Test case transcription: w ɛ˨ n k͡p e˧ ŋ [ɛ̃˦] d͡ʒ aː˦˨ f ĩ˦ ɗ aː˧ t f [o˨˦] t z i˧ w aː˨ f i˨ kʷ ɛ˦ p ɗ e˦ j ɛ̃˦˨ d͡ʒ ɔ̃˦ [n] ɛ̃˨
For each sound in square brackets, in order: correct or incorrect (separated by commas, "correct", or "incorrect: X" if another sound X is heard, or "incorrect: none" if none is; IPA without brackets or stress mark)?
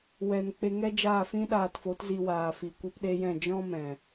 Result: incorrect: ɛ˦, correct, incorrect: m